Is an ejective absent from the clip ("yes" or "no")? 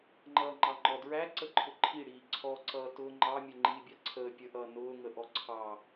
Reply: yes